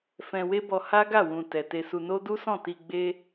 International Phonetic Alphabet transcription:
fɛ̃˧we˦bɔ˧ ha˦ɡa˦˨wũ˨ tɛ˨te˧su˧no˦ du˦sɔ̃˦˨ti˧ ɡ͡be˦

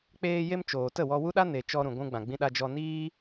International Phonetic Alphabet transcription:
k͡peː˧je˧m t͡ʃoː˨ tə˦˨wɔ˧wu˦ɗa˦ ne˨t͡ʃɔ˧ ɾũ˨ɡʷũ˧ɡ͡bã˨ɡ͡bĩ˧ ɗa˧d͡ʒɔ˧niː˦

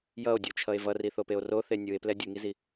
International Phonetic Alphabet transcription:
jʌo̯dʲut͡ʃʰʌe̯ vʌriθopeo̯ roθe nʲɯe̯plɛ dʲɯŋizi

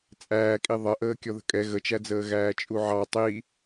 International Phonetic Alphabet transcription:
t͡sʼæːkʼi ðˤʌʔəː kʲɔðə̤kʼɛ ɣət͡ʃæd͡zəː ɣæːt͡ʃʼuʕɑ tˤi

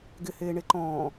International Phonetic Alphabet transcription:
ɡɪ heːɳeǃɔ̃ː

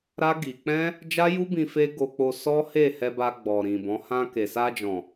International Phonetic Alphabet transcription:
ɾa˦ ɡi˧ k͡pɛ̃˦ | d͡ʒa˦ju˦bĩ˧ fe˦ɡo˧k͡po˧ sɔ˦he˦˨hɛ˧ba˧ ɡ͡bɔ˨ ɾĩ˨bɔ̃˨˦ hã˧ke˨sa˧d͡ʒɔ̃˨

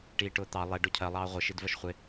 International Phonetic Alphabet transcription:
ʈiːʈʊːt̪ɑ lˠɛ ɖʊcʰɜ lˠɑːʁʷɪ ʃidvɜʃχʷɪ

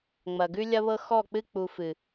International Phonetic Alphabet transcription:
ŋ͡mɐ˨ɡʉ˦lʲɐ˦βɤ˦ xɔ˦˨k͡pɨ˦ k͡pu˧fɨ˨

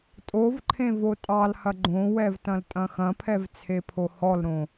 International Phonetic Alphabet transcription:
tʼovǃʰẽ votʼɑlhɐ ɡ͡ǃõwɛv tɐ̃ltʼɐ̃xɐ̃pʰɛv t͡sʰepʰohɔlɾõ

